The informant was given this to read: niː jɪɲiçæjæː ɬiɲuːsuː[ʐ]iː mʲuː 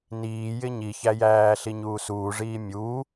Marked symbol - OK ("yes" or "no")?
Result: yes